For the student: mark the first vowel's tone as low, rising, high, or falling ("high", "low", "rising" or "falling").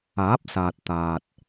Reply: rising